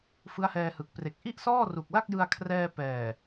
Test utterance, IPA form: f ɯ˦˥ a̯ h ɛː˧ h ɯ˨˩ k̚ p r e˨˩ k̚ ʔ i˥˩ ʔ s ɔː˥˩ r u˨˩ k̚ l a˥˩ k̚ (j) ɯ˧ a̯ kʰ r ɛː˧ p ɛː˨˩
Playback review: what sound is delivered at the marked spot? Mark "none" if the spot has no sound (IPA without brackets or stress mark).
j